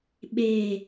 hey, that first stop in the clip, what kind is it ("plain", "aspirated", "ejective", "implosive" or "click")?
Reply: implosive